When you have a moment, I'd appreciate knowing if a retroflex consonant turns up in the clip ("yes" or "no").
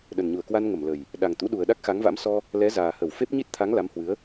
no